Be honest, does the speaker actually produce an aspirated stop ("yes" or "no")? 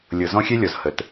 no